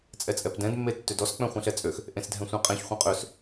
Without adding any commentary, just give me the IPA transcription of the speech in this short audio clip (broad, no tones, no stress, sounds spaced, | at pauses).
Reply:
t͡sʼ ɛ t͡sʼ ɛ p d ɛ̃ d mː e tː ø d ɔ s k͡p ɛ̃ χʷ ẽ ɬ ɛ t͡sʼ ø x | ʔ ẽ s dʱ ɛ̃ sʷ ẽ qʼ ẽ ç χʷ ẽ qʼ ø s